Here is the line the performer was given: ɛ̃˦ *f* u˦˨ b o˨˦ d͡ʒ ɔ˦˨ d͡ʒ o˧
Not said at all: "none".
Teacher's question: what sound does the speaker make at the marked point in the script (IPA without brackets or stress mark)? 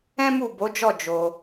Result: m